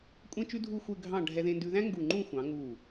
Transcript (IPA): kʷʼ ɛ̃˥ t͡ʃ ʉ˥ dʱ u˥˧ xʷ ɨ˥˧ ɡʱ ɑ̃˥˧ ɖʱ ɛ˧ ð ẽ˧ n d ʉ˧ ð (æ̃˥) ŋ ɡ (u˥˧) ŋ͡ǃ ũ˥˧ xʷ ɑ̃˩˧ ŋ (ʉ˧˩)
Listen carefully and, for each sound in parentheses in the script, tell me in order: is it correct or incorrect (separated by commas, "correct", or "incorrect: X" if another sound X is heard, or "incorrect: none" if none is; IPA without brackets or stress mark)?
correct, incorrect: u˧˩, incorrect: u˧˩